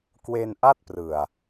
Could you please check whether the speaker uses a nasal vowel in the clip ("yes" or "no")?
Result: no